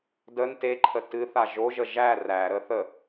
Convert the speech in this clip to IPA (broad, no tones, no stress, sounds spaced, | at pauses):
d ə n t e ǃʰ ə t ɨ θ a ʒ o ʒ ə ʒ æ r æ ɾ ə θ ə